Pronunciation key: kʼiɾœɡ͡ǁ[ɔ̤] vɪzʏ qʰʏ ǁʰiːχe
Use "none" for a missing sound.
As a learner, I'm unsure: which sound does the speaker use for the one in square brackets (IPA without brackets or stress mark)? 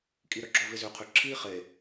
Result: ɔ